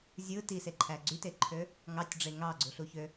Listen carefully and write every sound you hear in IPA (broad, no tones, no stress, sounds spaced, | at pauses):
zʲ ɯ t i s e ǃʰ æ ɡ͡ǀ y t e ǃʰ ø | ŋ ɑ tʲ ɖ͡ʐ e ŋ ɑ ɡ͡ǀ u ɬ u ç ø